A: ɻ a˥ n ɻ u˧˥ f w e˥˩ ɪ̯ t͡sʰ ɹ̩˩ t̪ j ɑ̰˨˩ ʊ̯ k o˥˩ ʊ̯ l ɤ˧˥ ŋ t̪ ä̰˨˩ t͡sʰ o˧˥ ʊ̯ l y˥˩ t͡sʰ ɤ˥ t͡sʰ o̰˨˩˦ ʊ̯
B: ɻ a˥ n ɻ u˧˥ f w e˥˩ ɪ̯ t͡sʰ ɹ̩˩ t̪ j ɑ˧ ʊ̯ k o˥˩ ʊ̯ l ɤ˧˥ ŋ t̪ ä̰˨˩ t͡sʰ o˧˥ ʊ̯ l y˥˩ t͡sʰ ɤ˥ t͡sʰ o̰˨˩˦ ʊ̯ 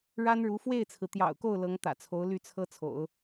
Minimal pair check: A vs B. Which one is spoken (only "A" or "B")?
A